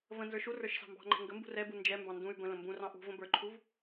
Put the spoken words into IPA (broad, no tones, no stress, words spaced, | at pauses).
və̃ nzə˞ʃurə˞ʃ sɑ̤mbɑ̤ŋ͡ǃɛ̤ ŋɡə mbṳrɛbu nd͡ʒɛmbɑ̃ ndũy̯ bə̃lə̃ mbũrɑ̃ ʔṳ və̃bə˞ǃʰuv